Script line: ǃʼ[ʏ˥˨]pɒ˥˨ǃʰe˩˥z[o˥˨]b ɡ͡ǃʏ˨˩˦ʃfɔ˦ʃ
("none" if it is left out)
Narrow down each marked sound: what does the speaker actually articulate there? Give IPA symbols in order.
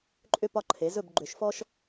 ʏ˥˨, ɵ˥˨

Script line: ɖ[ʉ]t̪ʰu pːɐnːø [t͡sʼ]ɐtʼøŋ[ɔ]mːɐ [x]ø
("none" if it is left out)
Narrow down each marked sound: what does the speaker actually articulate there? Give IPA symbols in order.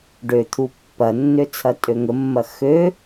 ø, t͡sʰ, ə, x

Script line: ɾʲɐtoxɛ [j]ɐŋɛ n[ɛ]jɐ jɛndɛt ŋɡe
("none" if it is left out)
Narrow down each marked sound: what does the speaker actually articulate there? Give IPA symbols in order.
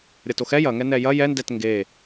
j, ɛ

